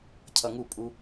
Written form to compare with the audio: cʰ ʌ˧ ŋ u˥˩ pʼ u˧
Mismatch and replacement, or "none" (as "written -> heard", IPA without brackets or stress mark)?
none